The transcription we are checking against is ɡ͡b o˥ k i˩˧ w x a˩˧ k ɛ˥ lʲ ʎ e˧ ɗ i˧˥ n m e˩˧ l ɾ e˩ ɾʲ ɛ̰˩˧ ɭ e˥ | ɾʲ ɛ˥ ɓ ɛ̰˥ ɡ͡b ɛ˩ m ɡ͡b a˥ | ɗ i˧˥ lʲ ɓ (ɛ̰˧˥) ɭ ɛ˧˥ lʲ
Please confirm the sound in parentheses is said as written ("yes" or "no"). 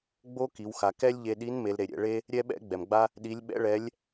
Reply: no